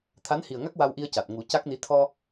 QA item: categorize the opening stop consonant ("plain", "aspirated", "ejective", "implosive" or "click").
aspirated